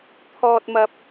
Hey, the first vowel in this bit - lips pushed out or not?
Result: yes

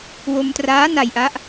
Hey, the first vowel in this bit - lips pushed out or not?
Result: yes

